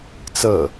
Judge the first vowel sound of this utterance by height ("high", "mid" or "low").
mid